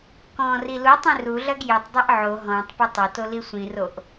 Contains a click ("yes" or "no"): no